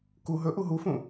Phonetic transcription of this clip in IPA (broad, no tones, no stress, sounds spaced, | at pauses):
k u ɦ ɵ ʔ u ɦ u f ũ